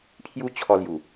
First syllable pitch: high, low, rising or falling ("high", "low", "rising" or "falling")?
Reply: high